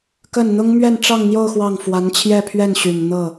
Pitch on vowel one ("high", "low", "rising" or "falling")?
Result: falling